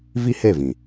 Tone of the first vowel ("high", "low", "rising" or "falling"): high